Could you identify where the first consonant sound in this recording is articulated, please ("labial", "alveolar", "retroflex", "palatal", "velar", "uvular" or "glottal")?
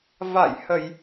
labial